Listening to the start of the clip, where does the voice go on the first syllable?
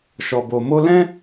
low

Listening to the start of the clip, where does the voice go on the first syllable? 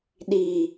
high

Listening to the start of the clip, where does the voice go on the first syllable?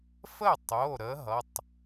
falling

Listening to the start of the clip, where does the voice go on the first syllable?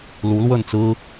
rising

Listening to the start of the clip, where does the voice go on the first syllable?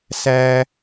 high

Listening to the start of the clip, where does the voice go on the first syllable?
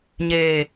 low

